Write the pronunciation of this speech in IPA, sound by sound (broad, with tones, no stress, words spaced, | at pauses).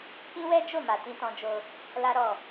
kĩ˦wɛ˦d͡ʒo˦˨ma˨ tĩ˧tɔ̃˧d͡ʒo˧ | la˦ɾɔ˦˨